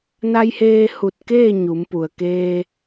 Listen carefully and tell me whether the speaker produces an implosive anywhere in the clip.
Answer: no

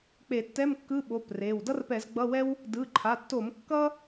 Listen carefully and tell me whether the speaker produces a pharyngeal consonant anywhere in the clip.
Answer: no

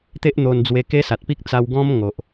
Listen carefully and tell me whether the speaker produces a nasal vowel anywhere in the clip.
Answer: yes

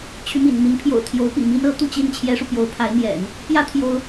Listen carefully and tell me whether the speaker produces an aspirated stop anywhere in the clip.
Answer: yes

